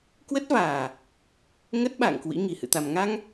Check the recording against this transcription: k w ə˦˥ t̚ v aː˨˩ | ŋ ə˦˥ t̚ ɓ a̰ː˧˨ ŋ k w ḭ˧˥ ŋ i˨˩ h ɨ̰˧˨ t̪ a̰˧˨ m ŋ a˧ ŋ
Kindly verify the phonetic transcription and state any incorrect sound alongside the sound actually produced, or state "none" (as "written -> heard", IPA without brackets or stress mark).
a̰˧˨ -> a˨˩